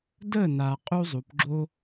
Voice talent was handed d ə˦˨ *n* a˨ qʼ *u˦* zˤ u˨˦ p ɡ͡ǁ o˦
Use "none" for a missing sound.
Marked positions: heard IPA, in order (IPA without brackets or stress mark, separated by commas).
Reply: n, u˦